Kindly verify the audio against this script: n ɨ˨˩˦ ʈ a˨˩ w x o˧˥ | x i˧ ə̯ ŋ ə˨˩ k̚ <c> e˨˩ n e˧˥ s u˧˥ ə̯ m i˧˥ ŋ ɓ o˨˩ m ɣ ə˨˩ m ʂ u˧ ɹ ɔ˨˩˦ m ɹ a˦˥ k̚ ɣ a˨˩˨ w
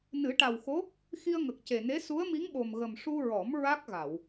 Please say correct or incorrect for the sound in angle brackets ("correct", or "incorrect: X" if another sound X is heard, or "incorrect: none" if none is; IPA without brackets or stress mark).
correct